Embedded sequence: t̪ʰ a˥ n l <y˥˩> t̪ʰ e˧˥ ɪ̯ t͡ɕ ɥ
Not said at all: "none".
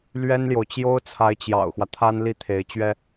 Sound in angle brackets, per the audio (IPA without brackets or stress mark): i˥˩